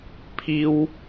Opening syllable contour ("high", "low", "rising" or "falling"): high